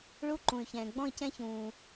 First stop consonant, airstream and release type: click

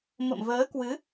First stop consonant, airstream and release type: plain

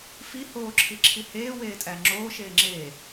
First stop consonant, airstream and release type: click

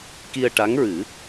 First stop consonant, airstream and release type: plain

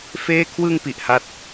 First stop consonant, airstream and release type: aspirated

